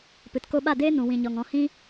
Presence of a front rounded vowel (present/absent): absent